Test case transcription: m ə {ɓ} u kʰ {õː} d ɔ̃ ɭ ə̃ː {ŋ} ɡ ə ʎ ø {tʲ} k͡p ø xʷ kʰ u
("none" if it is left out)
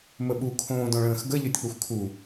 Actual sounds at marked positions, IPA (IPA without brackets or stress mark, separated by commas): ɓ, õː, x, tʲ